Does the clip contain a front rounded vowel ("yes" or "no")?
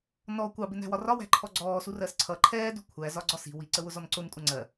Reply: no